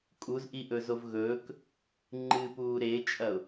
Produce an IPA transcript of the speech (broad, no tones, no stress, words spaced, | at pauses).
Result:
kʼuzʔiʔɵzov ɣɵːk | ŋ͡ǃɨpuː ɾet͡ʃʼɐʊ̯